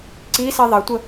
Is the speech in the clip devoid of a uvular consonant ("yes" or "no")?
yes